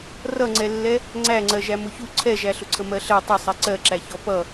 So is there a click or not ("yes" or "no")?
yes